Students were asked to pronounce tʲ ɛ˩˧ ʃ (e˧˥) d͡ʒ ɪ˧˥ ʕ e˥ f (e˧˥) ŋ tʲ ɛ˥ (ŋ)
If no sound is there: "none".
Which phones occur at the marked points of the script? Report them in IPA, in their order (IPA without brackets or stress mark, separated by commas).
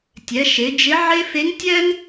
e˩˧, e˧˥, ŋ